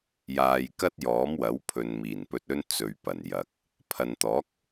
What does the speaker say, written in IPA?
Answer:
j aː˨ j k ɐ˥ t̚ j ɔː˨˥ m w ɐ˨˥ w pʰ ɵ˨ n m iː˨˩ n p ɵ˧ t̚ ɵ˥ n t͡s ɵ˨ ɥ p ɐ˨˩ n j ɐ˨ k̚ | pʰ ɐ˨ n t̪ ɔː˨˥ k̚

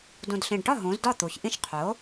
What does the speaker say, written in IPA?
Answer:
d ũ˨˩ d ɬ ĩ˨˩ ɖ ʈ ɒ˥˩ ɦ ũ˩˥ z d ɒ˥˩ t̪ u˩˧ ç ʔ ĩ˦ ʃ qʰ o˩˥

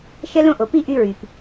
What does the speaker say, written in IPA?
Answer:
ʃ ɛ˥ l õ˥ ʔ o˩ p i˥ ʔ y˥ ɹ y˩ p

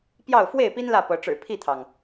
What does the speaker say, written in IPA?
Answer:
p j ɑ˥˨ ʊ̯ f w e˥˨ ɪ̯ p i˦ n l ä˥˨ p ɤ˨˦ ʈ͡ʂ ɻ̩˨˩ pʰ i˥˨ t̪ʰ ɑ˩ ŋ

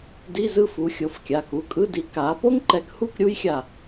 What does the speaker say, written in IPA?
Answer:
d i˧˥˧ z ɯ˥˧ f u˨˦ xʲ o˩˧˩ f kʲ a˩˧˩ k u˩˧˩ kʼ ɯ˧˥˧ d i˨˦ k a˨˦ p o˥ ŋ ǃ ɛ˨˦ k h u˥˧ k ɾʲ u˥ j xʲ a˧˩

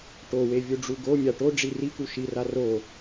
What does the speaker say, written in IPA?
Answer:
ʈ o w e vʲ u ɖ͡ʐ u ɡ o mʲ a ʈ o ɖ͡ʐ i r i k u ʃ i r a r o

